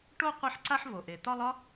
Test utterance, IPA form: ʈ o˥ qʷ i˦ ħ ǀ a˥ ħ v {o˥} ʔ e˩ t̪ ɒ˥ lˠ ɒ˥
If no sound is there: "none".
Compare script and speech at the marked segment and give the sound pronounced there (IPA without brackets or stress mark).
o˩